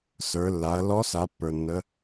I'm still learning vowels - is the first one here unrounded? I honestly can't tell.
yes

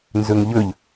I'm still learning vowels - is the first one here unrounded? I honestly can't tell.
no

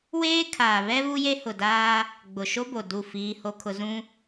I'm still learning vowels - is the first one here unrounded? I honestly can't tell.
yes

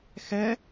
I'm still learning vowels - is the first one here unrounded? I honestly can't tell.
yes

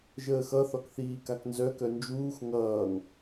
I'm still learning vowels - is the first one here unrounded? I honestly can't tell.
yes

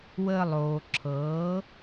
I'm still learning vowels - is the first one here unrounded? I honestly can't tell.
yes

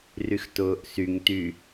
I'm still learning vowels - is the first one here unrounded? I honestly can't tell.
no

